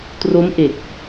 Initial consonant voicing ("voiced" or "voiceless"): voiceless